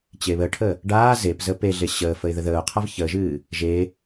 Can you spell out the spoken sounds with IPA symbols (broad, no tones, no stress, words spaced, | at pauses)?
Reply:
t͡ɕeβəʈʰə | ɖaː zepzə peɮe ɕəːfəɪ̯ ðəðəːʊ̯qʰav çəːʒɨː | ʒe